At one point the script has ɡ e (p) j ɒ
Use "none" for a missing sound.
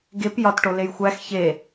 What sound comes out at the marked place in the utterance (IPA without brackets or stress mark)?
p